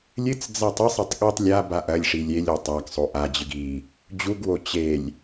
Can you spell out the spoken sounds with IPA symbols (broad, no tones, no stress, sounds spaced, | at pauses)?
lʲ ɨ t͡s d͡z a tˤ ɨ sˤ e tˤ ɠ e tˤ lʲ a b a ʔ ɐ lʲ ʂ i lʲ e lʲ o tˤ a ɡ sˤ o ʔ a d͡ʑ ɨ ɡ i | d͡ʑ u ɡ w o t͡ɕ e lʲ